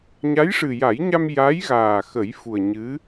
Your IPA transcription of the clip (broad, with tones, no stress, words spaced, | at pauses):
ɲa˧˥jʂɨ˨˩ja˨˩˦jɲa˧m ja˧˥jɣaː˨˩ xə˨˩˦jfu˨˩ə̯ ɲɨ˧˥